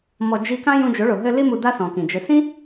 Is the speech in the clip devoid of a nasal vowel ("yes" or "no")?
no